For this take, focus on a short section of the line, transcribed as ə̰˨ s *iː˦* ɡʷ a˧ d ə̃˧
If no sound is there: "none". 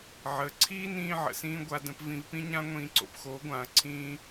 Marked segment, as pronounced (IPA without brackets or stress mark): ĩː˦